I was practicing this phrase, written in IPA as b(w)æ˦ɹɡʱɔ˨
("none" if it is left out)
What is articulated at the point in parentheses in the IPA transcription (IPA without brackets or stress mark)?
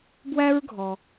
w